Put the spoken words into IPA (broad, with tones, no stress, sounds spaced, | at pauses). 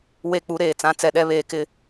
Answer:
w e˦˨ k͡p u˦ ɾ eː˨ t͡s ã˨˦ t͡s ɛ˨ ɗ ɛ˦ β eː˨ k ɪ˦˨